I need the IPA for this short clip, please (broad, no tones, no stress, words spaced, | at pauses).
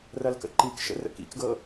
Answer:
rɐlkə̰ǃikʃə̰ rə̰kḭkɡɤ